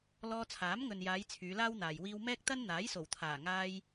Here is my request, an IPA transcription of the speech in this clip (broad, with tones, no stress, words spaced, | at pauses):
lɔː˧t͡sʰaː˨˥mŋɵ˨njaː˨˧j t͡sʰyː˨˧laː˥wn̪aː˨j wiː˧wmɛː˥k̚t̪ɐ˥n n̪aː˨˥jso˨˩wt̪ʰaː˨˩ŋaː˧j